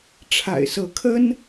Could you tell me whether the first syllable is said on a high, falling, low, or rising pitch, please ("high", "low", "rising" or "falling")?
low